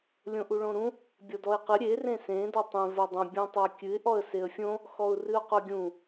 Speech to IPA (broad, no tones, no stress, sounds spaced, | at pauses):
lʲ õ ʔ u ɭ õ ɾ ũ | bʲ ɔ d ɔ ɪ̯ q ɨ ɾʲ e r ẽ s ẽ d ɔ tˤ ẽ v o dˤ ũ bʲ ũ tˤ ɨ ə̯ kʲ ɨ ɪ̯ ʔ ɔ ə̯ s e ə̯ fʲ õ | x ɔ ʊ̯ r ɨ ʊ̯ q o ɡʲ ũ